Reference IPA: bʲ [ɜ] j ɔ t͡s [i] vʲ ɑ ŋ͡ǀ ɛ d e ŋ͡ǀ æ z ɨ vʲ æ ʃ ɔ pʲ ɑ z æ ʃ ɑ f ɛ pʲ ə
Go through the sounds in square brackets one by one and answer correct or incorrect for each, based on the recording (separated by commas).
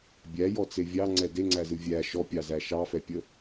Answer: incorrect, incorrect